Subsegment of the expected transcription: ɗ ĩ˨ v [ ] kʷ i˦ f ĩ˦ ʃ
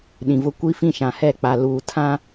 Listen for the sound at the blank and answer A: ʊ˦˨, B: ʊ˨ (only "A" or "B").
A